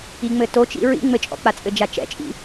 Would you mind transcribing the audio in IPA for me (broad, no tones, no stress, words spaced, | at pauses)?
iŋ͡mɘtot͡ʃḭ ɹḭ ŋ͡mɘt͡ʃʼɔ̰k͡pat͡sʼɘ d͡ʒat͡ʃɛ̰t͡ʃʼḭ